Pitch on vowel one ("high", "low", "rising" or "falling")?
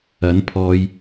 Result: rising